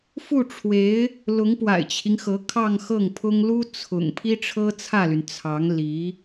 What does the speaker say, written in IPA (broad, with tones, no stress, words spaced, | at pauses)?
fu˥˩ʈ͡ʂʰwe˧˥ɪ̯ | lʊ˧˥ŋpwa̰˨˩ɪ̯t͡ɕʰi˦ŋxɤ˧˥ kʰɑ˥˧ŋxɤ˥˩ŋpʰʊ˥ŋ lu˥ t͡sʰʊ̰˨˩ŋ pʰi˥ʈ͡ʂʰɤ˥t͡sʰä˥˩ly˩n t͡sʰɑ˧˥ŋ li˧˥